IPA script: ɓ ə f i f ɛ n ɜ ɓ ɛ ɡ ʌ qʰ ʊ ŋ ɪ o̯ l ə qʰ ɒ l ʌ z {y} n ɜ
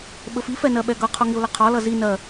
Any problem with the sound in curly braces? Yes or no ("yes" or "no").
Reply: yes